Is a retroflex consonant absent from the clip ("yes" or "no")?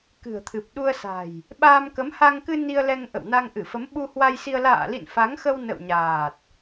yes